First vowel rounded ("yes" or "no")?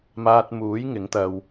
no